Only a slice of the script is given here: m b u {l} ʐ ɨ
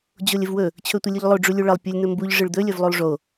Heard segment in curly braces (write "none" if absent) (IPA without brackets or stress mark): ʎ